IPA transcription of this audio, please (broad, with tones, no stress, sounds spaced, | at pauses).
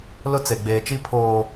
l ʊ˦ t͡s e˨ ɡ͡b eː˨ t͡ʃ i˦ pʰ oː˨